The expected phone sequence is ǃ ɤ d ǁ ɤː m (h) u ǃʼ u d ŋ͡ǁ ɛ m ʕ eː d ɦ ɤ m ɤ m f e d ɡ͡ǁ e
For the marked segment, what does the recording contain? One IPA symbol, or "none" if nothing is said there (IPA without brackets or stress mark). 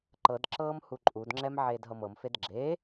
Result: h